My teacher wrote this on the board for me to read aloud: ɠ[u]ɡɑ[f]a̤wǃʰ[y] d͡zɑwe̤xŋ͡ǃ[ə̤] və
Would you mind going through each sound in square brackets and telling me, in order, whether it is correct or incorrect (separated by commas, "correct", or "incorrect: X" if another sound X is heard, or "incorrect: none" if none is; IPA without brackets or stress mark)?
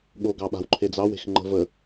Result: incorrect: o, incorrect: ɓ, incorrect: e, correct